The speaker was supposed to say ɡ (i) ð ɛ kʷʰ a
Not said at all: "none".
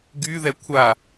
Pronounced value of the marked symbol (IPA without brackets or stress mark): y